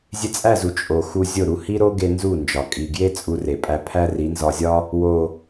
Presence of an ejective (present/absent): present